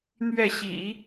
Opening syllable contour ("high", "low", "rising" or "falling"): falling